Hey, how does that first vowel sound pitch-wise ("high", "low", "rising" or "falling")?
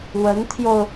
rising